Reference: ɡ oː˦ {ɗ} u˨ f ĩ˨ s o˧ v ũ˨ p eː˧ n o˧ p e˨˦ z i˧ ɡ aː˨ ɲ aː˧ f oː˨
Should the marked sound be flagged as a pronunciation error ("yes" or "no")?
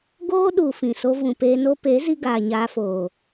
no